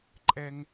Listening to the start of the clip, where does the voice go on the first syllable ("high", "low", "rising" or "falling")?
high